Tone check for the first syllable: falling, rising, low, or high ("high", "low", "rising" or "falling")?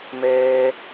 high